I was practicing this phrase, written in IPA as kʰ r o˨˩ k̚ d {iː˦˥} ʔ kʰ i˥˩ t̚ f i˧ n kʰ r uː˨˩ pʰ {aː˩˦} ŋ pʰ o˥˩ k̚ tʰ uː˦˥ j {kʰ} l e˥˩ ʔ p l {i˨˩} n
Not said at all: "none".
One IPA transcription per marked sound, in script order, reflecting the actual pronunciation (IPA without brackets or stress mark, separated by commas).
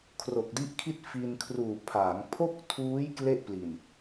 i˦˥, aː˩˦, k, i˨˩